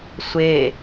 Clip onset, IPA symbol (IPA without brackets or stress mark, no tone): sʷ